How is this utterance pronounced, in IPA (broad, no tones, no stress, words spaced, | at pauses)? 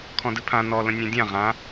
kʰɔ̃dɨpʰã nɔ lə̃nʲẽdʲã ʁã